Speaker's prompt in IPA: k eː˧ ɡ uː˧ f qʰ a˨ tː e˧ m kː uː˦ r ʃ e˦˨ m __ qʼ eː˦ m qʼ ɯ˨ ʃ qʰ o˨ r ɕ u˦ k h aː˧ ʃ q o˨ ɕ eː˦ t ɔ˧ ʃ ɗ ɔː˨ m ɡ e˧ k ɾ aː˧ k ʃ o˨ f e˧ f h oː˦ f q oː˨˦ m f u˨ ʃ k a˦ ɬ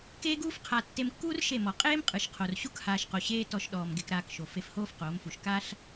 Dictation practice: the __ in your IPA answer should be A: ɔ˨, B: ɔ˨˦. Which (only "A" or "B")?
A